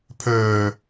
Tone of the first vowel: low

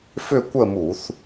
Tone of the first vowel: falling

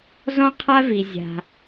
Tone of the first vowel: high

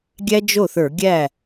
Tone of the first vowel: high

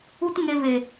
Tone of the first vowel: high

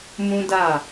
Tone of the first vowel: high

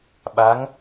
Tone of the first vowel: rising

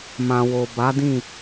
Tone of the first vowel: low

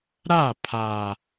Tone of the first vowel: falling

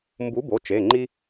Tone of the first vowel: rising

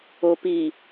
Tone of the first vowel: low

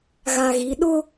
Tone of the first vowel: low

